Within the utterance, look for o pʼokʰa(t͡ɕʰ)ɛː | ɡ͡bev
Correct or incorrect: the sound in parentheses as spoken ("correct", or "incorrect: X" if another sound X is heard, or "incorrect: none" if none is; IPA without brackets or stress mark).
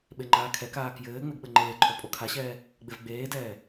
incorrect: ɕ